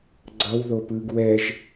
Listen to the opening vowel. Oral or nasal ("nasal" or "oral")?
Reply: oral